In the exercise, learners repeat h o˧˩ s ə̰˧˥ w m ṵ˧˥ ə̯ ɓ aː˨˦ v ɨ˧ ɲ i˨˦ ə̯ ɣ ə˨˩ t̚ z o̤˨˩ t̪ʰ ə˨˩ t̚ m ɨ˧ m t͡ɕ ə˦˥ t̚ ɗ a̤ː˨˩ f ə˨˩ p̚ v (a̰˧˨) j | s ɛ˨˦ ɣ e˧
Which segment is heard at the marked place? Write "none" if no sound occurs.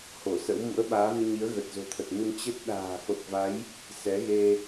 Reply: a˨˦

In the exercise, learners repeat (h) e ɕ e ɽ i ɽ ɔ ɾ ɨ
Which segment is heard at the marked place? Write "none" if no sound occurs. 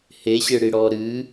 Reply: h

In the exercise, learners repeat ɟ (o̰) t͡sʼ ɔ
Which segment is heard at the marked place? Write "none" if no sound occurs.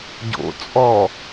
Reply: o̰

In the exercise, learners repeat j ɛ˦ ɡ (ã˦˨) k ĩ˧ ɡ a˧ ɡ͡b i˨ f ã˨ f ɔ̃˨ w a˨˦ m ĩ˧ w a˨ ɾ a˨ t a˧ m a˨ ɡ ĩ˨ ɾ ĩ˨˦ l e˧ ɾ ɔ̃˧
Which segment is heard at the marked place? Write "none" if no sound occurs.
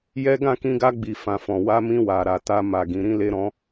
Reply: ã˦˨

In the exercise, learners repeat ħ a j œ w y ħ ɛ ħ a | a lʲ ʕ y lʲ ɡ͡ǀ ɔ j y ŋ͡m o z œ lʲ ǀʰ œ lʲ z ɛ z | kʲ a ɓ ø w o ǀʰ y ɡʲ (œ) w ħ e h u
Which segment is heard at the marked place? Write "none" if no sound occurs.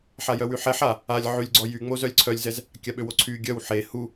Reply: œ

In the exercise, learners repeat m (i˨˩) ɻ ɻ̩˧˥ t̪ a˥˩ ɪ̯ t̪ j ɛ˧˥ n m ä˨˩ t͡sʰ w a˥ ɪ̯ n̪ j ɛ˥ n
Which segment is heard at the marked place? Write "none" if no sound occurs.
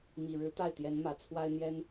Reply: i˨˩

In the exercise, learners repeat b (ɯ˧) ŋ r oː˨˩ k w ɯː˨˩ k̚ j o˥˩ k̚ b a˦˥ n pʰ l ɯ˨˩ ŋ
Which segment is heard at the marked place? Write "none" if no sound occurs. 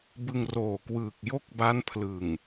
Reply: ɯ˧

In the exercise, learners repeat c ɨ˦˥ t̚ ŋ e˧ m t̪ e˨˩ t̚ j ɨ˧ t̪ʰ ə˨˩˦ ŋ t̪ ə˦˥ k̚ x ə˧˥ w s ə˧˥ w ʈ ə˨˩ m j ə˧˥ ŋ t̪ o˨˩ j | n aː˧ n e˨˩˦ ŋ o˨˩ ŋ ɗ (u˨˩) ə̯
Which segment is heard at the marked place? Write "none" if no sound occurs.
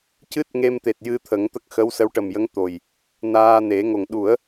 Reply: u˨˩˦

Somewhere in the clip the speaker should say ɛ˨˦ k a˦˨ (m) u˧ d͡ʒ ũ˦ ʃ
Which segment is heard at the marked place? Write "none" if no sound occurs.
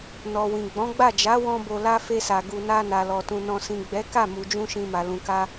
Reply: m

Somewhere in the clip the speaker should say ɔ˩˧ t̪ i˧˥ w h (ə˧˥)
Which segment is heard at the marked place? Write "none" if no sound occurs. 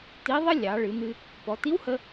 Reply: ə˧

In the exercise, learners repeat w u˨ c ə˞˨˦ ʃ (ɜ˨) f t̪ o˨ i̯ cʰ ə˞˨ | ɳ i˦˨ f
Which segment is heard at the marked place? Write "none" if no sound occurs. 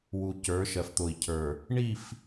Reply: ɜ˨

